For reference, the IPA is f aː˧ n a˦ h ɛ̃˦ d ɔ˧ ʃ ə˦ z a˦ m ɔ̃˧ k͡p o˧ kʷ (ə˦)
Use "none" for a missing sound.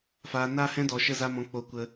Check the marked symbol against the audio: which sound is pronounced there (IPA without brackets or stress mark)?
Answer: ə˧